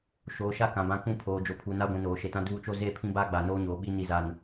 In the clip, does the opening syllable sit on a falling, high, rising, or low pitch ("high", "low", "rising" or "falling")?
low